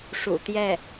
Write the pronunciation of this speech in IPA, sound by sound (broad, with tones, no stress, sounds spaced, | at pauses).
ʂ ṵ˨˩ t̪ j ɛ˥˩